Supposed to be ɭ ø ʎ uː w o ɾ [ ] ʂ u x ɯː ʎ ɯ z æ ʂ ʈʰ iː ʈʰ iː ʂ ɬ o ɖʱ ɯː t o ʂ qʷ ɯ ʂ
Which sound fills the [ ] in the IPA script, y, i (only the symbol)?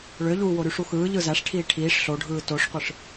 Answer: y